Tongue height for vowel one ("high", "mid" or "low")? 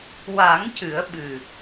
low